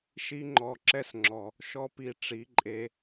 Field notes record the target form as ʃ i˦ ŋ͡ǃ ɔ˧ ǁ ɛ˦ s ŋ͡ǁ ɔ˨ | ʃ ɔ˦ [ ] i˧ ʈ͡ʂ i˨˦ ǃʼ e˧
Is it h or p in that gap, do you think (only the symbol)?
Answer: p